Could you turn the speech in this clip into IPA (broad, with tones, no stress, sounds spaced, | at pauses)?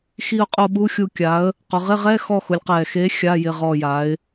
x i˦˨ ʊ̯ qʼ o˦˨ ɓ u˧˥˧ xʲ u˦˨ kʲ a˨˥ ə̯ | q ʊ˩˧ ʁ ɪ˧˥˧ ʁ ɛ˧˥˧ x ɔ˦˨ x ʊ˩˧ lʲ q ɛː˨˩ x eː˨˥ xʲ a˧˥˧ j ɪ˦˨ ʁ ɔ˦˨ j a˨˥ ɪ̯